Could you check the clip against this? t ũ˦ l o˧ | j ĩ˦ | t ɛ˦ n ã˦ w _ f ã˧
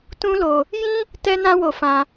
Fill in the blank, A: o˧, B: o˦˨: A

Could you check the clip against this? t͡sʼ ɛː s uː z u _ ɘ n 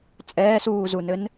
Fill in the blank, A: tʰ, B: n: B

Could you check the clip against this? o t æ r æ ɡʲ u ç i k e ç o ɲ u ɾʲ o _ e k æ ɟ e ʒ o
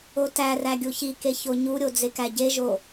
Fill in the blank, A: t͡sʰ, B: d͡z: B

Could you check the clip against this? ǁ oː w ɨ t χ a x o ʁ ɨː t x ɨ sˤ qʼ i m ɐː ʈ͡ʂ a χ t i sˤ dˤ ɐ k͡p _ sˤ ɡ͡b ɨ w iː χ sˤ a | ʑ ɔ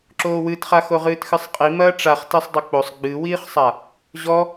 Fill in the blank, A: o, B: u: A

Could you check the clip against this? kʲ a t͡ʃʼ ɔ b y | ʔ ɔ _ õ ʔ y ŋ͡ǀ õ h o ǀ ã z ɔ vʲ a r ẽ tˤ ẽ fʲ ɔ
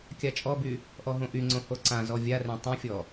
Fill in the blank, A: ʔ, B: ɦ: B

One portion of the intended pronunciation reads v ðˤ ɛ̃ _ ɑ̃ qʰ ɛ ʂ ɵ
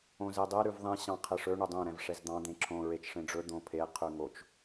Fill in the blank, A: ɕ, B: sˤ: A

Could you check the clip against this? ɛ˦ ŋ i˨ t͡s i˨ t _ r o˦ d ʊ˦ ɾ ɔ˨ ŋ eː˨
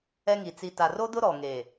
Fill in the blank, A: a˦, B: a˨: B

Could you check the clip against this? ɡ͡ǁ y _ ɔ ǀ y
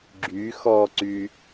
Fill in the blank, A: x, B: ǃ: A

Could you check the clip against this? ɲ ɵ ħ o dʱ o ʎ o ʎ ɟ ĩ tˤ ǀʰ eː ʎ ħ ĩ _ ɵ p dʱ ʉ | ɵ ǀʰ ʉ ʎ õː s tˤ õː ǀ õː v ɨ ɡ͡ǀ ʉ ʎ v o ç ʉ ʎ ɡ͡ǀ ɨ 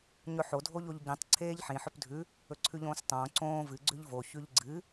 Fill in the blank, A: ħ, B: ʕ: A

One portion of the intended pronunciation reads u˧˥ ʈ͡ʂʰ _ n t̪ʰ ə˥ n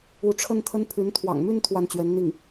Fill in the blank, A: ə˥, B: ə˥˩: A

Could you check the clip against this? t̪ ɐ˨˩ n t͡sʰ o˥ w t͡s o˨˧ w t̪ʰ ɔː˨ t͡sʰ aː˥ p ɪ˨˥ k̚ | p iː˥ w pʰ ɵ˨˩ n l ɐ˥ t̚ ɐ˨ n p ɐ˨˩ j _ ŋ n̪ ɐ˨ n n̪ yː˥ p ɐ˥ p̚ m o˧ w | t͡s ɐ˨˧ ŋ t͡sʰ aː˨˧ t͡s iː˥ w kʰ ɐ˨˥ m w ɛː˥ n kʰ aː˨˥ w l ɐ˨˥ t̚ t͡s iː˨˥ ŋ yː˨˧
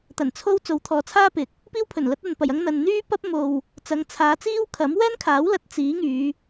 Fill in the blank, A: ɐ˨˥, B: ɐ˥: B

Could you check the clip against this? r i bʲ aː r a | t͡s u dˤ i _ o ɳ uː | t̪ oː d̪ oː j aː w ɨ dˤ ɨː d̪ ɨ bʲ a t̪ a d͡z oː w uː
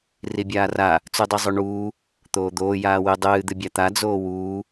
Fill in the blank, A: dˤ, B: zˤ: B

